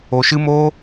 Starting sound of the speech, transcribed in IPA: o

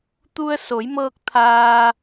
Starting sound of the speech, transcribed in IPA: t̪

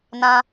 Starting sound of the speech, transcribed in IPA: n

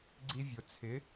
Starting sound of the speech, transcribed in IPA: ɡ͡ǀ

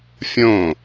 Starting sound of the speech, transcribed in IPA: fʲ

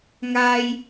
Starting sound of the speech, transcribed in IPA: ŋ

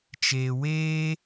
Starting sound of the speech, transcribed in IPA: t͡ʃ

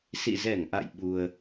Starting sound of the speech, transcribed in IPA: s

